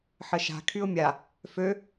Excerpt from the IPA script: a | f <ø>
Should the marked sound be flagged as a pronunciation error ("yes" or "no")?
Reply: no